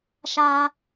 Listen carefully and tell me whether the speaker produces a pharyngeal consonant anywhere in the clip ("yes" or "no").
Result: no